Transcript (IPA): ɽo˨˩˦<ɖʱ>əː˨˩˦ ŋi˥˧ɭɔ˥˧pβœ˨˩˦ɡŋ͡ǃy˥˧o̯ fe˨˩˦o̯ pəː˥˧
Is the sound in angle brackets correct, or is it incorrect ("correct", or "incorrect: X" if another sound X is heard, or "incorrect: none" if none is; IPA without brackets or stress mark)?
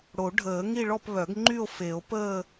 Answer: correct